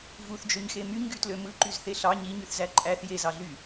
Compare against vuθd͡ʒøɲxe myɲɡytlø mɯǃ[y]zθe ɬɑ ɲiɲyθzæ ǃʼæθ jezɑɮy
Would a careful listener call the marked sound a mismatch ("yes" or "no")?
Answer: no